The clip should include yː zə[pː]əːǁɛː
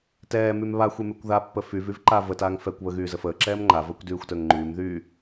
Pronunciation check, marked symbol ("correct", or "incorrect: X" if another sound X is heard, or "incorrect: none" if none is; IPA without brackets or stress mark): incorrect: f